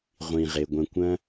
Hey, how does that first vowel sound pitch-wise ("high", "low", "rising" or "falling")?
low